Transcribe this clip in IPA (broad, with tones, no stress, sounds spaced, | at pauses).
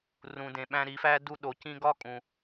r ũ˨ d ẽ˨ ɓ æ̃˧ ɾ i˨˦ f æ˦ d u˧ ɗ o˨ c ĩ˧ ɡ ɒ˦ kʼ ũ˨